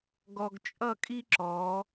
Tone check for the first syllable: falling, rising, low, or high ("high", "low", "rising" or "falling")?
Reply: low